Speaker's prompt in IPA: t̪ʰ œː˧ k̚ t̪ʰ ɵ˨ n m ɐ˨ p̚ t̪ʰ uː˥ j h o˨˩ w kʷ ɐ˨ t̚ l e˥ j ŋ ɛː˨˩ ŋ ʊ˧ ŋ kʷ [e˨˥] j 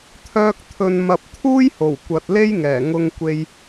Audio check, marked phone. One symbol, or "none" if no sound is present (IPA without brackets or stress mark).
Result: e˧